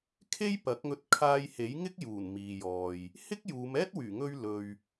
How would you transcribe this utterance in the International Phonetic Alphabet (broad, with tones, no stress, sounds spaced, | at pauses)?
kʰ e˥ j p ɐ˨˥ k̚ ŋ ɵ˧ t̚ kʰ aː˧ j h e˨˥ j ŋ ɪ˥ k̚ j uː˨˩ n m iː˨ j ɔː˨ j | h ɪ˥ k̚ j uː˨˧ m ɛː˥ t̚ w yː˨˩ ŋ ɵ˧ ɥ l ɵ˨ ɥ